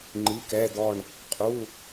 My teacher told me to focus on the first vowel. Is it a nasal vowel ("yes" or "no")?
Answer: no